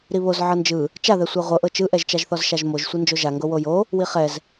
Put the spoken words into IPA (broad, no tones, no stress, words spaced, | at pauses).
ɾiβoz ʕɤnd͡ʒɯ | t͡ʃaðɛ sʷɛʁʷɤʔɤ t͡ʃɯʔɛʒt͡ʃaʒθɔz ʃaʒmoʒ sʷind͡ʒoʒaŋɡo wojo | wiχɛz